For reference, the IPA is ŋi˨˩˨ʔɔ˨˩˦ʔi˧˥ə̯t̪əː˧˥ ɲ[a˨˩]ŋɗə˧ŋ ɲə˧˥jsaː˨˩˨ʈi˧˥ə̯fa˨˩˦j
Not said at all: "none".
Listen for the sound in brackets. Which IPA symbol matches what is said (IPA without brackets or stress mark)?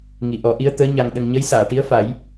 a˧